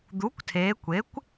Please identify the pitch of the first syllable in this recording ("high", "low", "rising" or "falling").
rising